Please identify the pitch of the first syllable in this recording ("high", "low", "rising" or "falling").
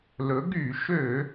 rising